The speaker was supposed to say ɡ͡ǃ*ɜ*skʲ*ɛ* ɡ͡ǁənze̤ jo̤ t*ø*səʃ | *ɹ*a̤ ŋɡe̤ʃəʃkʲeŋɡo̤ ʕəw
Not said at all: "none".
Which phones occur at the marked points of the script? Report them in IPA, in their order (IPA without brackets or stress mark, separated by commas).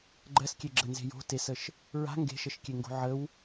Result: ɜ, e, e, ɹ